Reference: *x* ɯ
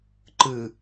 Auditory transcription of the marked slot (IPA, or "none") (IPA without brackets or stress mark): ǃ